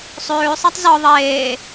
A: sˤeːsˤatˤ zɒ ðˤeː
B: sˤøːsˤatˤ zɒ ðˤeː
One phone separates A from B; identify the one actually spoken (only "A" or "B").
B